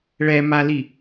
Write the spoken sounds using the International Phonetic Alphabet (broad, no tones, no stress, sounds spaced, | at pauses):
ɭ ɛ m a l i